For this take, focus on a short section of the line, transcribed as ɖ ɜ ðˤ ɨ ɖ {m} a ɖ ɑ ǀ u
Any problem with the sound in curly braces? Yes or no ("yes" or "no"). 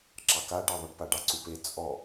yes